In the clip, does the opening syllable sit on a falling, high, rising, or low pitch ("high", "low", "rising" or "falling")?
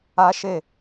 high